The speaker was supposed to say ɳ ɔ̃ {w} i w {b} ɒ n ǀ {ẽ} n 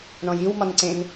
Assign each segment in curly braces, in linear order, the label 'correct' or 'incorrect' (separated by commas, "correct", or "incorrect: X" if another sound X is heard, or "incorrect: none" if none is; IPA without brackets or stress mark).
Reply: incorrect: j, incorrect: m, correct